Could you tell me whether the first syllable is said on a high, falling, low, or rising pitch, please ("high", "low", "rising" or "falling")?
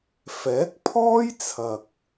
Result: rising